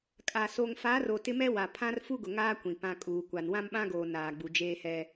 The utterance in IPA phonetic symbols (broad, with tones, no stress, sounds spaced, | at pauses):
kʼ a˨ s o˨ ŋ f a˨˦ r o˨ t ɪ˦ m ɛ˦ w a˨ pʰ ã˦ r f u˦ ɡ ʊ˨ ŋ aː˦ kʷ ĩ˨ p ã˨ kʼ uː˨ kʷ a˨ n w ã˦ m ɓ ã˦ ɡ oː˨ n aː˨ ɡ͡b u˨ d͡ʒ eː˦ h ɛ˦